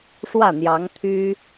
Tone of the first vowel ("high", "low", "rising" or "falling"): falling